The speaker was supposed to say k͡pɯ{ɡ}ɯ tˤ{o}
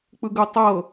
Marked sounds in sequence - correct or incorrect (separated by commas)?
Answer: correct, incorrect